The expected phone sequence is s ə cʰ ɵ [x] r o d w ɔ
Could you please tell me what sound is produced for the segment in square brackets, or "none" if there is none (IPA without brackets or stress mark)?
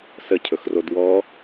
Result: x